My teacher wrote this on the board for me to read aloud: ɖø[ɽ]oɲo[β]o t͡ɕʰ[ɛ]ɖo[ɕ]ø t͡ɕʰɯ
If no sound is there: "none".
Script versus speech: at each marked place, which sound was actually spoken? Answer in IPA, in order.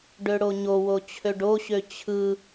ɽ, w, ø, ɕ

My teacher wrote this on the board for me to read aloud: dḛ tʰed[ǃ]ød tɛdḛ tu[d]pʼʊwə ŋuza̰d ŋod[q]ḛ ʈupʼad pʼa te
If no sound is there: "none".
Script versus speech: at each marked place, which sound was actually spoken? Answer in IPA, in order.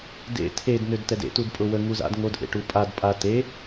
n, d, ʔ

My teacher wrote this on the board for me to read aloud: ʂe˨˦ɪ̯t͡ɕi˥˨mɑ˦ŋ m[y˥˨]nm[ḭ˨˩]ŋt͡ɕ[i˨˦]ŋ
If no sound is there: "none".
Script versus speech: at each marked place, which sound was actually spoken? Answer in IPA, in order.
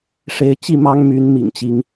y˨˦, ḭ˨˩, i˨˦

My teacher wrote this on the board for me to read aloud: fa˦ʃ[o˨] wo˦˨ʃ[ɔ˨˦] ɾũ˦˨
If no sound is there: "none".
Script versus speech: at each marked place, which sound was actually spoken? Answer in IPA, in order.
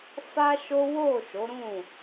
o˦, o˨˦

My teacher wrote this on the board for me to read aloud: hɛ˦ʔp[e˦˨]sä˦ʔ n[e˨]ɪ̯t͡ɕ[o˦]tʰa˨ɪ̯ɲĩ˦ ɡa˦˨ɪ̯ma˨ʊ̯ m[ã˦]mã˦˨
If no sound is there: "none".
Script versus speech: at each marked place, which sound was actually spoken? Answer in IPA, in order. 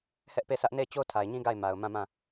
e˦˨, e˦˨, o˦, ã˦˨

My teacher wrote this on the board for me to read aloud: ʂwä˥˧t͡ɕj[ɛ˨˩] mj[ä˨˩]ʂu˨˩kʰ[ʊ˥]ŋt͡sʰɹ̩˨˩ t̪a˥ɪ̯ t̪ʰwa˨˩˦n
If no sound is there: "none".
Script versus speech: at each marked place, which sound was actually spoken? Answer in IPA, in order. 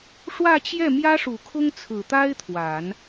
ɛ˥˩, ä˥, ʊ˥

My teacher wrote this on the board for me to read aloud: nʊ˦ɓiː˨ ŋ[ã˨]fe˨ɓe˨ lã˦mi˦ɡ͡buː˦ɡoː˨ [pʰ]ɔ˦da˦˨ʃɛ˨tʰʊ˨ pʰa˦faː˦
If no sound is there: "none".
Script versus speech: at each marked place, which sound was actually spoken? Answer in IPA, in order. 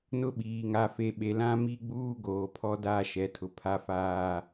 a˨, pʰ

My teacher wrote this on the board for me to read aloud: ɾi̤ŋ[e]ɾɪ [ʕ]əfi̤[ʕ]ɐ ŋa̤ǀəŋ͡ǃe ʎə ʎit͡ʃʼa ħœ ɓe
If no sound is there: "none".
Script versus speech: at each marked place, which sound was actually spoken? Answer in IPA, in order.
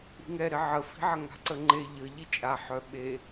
ɛ, ʕ, ʕ

